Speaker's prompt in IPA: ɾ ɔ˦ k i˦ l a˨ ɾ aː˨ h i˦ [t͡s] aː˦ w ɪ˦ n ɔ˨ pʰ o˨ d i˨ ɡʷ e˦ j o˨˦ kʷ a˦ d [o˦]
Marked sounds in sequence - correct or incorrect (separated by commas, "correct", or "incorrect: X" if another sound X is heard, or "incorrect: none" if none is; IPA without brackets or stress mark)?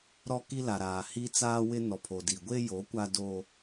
correct, correct